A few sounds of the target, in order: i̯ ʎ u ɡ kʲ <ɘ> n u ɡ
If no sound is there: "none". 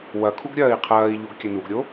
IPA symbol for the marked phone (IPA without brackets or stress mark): ɘ